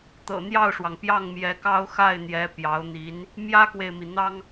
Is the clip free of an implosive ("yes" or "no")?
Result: yes